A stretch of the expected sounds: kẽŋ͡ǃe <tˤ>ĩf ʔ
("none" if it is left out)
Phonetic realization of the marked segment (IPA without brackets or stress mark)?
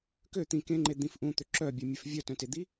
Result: d̪